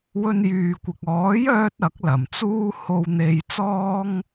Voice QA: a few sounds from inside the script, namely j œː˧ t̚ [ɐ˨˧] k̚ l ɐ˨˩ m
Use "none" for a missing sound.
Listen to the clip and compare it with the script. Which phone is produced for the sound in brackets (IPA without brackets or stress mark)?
ɐ˨˥